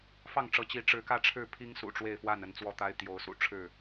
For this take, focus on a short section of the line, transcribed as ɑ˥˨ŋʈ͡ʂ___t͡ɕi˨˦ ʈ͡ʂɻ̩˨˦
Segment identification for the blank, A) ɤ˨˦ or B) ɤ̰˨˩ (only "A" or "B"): A